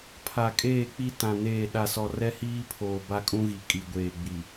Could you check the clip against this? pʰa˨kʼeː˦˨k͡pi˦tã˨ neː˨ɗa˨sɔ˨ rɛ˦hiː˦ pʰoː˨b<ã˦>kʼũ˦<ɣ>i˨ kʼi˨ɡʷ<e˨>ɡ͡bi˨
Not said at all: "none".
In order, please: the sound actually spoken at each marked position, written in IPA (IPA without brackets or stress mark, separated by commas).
a˦, ɣ, eː˨